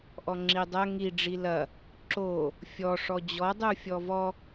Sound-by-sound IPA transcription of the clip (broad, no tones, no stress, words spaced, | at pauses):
ʔɔŋ͡ǁidˤɐ ŋi ɖ͡ʐilɐ | ǁo | fʲɔ ʂɔd͡ʑɔ dˤufʲɔvɔ